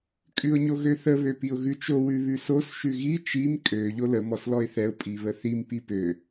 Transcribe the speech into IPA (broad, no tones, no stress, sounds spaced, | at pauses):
kʼ ʉ ʊ̯ ɲ o ɣ ø θ ə β ø p i ʊ̯ ɣ ʉ t͡ʃ o w ʉ β ʉ s o s ʃ ʉ ɣ i t͡ʃ i m kʼ ø ʎ o l ə m ɔ s l ɔ ɪ̯ θ ɛ ʊ̯ pʼ i β ə θ i m p i p ø